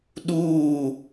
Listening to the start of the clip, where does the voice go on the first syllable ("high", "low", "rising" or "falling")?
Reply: falling